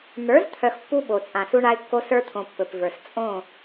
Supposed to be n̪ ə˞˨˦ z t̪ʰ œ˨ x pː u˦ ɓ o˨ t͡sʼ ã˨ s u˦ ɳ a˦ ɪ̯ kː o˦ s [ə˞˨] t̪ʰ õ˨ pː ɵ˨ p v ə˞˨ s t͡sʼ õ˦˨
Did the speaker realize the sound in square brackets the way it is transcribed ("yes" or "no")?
no